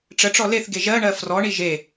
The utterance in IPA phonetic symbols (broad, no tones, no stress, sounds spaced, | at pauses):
ʈ͡ʂ ə ʈ͡ʂ ɔ l e θ ɡ e ʒ ɜ ɳ ɜ f r ɔ ɳ i ʒ e